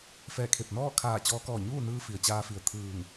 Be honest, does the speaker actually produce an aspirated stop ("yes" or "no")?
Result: yes